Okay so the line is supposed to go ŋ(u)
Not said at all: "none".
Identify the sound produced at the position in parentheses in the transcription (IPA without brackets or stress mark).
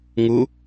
u